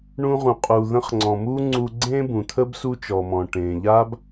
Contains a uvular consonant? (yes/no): yes